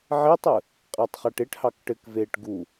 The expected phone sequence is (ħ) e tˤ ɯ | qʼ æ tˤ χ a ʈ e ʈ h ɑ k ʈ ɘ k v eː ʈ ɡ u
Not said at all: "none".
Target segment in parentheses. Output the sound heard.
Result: ʕ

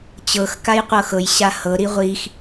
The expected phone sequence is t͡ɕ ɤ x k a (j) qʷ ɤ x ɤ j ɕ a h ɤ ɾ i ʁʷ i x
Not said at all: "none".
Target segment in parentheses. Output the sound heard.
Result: j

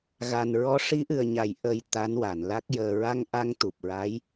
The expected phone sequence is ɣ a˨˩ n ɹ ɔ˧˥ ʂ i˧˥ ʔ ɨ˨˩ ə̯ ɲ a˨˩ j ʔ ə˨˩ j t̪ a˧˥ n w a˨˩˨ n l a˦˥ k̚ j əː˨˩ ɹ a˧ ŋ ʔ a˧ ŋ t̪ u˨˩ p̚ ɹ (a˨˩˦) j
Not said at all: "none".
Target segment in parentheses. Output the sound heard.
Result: a˧˥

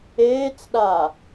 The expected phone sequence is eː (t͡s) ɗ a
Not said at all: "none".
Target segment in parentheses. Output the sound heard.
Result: t͡s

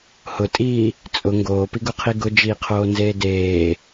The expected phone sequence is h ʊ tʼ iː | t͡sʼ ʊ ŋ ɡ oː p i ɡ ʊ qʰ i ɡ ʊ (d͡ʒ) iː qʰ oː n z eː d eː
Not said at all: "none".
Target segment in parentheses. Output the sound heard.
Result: d͡ʒ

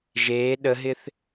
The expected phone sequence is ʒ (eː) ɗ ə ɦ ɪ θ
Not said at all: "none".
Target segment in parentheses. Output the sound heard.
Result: eː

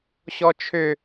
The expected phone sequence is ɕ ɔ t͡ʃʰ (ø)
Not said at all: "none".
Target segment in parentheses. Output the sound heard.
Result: ø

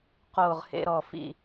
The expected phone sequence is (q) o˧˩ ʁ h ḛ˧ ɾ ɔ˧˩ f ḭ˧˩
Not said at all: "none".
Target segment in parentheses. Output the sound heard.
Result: q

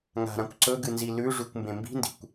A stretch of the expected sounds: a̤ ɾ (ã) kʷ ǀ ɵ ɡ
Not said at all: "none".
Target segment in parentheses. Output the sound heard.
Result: ã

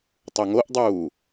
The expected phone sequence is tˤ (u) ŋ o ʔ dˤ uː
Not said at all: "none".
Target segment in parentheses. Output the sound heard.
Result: u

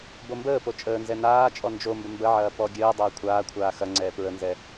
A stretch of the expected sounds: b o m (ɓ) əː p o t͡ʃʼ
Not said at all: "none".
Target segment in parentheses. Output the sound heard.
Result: b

